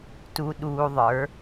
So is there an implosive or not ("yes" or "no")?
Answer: yes